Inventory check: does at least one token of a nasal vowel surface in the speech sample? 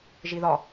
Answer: no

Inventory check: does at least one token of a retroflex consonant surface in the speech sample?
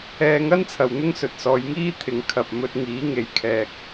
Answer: no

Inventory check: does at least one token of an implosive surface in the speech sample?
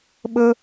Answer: yes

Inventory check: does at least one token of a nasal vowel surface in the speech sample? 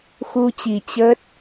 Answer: no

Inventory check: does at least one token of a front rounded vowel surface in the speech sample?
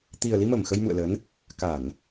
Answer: no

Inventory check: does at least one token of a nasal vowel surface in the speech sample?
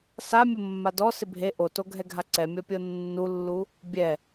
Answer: no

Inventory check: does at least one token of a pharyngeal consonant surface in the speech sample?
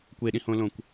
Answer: no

